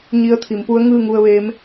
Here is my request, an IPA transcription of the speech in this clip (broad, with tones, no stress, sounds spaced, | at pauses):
ɲ i˧˥ ə̯ t̪ʰ i˩˧ m p u˧˥ ə̯ ŋ ɯː˥˨ ŋ u˧ ə̯ ʋ eː˧˥ m